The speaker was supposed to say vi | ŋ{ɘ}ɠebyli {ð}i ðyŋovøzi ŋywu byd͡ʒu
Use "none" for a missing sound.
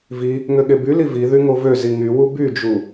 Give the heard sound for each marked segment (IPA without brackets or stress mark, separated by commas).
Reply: ø, v